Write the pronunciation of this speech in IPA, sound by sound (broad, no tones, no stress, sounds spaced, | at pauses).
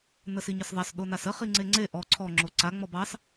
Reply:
n ə s i ɲ ə s ðˤ ɑ s ɗ o n a s ə χ i ŋ͡ǀ e ŋ͡ǀ e ʔ ɔ ǀʰ ɔ ŋ͡ǁ o ǀ a ŋ͡m ɔ b ɑ s